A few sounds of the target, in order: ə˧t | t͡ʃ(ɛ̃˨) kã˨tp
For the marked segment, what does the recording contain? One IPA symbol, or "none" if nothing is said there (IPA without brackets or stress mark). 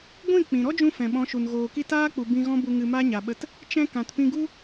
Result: ɛ̃˧